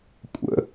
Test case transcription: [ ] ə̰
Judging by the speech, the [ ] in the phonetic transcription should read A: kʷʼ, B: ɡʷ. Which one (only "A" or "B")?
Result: A